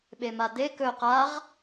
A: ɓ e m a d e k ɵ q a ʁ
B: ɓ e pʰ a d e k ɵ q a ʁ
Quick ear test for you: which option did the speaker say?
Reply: A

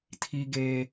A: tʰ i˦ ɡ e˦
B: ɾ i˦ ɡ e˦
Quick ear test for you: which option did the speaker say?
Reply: A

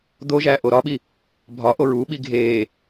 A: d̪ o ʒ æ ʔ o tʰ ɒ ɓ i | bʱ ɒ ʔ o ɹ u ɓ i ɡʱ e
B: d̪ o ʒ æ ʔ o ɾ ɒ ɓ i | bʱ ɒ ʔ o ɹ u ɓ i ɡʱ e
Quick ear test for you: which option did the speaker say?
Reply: B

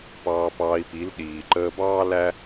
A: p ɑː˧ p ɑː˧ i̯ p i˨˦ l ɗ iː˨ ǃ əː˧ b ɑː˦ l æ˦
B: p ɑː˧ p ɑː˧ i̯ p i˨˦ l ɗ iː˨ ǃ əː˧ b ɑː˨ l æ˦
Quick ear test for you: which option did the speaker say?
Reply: A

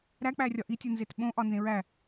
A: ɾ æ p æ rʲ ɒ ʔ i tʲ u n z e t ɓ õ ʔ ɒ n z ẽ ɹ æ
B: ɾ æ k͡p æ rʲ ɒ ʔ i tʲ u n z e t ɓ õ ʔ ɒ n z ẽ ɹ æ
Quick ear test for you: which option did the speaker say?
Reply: B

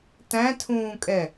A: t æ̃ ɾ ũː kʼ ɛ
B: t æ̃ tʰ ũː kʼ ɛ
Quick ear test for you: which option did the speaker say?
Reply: B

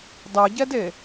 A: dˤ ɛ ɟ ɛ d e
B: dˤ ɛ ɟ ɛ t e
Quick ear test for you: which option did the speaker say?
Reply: A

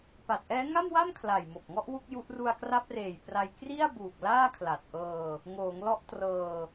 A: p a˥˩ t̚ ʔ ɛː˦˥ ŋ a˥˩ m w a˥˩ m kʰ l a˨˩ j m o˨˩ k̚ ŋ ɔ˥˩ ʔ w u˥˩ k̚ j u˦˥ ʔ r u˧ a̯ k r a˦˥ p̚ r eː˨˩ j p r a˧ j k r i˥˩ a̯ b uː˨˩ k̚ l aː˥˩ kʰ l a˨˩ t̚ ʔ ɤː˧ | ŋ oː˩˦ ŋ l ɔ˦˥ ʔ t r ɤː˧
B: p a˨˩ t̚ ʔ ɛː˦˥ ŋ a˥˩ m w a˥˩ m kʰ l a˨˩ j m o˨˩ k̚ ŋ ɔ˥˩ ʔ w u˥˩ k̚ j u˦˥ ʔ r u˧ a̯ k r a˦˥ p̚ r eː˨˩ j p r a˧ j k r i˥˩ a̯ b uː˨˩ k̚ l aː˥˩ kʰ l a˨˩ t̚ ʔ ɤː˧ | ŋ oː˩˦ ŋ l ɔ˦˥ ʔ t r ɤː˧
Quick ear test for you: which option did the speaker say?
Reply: B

